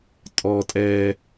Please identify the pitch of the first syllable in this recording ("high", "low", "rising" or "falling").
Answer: low